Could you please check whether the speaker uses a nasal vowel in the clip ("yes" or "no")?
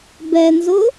no